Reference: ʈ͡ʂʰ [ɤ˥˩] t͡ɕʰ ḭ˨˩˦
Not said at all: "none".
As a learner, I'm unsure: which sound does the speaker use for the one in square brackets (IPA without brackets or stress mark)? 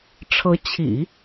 ɤ˧˥